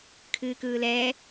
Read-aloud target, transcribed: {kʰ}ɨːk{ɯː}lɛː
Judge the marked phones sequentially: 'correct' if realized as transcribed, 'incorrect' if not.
correct, correct

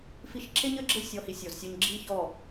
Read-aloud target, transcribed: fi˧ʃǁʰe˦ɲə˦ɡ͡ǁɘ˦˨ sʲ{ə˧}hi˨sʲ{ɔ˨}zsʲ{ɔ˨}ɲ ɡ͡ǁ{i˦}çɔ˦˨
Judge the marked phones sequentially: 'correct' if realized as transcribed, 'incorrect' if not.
incorrect: ɔ˧, correct, incorrect: ɔ˧, correct

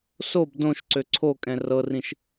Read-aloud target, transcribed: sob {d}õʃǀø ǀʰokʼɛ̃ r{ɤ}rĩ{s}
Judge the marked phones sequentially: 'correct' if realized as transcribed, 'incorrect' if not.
correct, correct, incorrect: ʃ

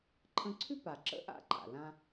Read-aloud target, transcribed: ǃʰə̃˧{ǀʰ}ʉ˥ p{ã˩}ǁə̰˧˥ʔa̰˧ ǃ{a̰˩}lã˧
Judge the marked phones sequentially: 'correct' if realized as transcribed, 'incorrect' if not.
correct, incorrect: a˩, correct

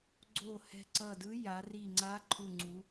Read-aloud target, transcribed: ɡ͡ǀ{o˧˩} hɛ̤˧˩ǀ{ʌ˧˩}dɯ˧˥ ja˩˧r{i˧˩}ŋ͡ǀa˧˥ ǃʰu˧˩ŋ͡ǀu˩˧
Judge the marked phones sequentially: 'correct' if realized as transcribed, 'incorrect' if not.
correct, correct, correct

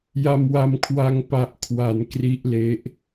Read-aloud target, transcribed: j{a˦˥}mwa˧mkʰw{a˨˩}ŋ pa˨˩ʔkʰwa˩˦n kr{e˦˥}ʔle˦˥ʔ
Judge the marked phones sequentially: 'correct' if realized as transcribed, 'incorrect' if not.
incorrect: a˧, incorrect: a˧, incorrect: i˦˥

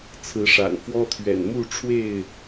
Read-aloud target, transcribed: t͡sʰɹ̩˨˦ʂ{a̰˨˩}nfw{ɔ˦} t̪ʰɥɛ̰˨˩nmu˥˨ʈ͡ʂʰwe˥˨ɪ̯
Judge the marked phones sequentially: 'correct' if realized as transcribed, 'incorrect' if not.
correct, correct

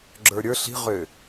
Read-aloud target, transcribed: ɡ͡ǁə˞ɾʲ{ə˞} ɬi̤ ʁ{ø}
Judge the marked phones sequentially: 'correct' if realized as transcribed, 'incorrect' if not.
correct, correct

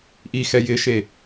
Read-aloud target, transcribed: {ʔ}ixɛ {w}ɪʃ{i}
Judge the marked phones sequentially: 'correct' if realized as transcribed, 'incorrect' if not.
correct, incorrect: j, incorrect: e

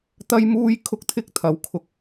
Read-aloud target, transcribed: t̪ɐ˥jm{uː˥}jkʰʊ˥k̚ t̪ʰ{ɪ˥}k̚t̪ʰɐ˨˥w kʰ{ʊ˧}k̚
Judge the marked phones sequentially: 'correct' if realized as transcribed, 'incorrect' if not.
correct, correct, correct

